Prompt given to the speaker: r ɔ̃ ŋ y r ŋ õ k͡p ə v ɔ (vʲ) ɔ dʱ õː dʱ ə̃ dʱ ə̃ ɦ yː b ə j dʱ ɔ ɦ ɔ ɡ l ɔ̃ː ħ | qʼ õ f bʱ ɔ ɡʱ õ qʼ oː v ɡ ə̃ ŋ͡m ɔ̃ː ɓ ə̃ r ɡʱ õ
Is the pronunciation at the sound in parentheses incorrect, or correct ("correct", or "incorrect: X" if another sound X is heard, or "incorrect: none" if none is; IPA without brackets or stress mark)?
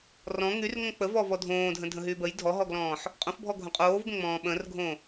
incorrect: v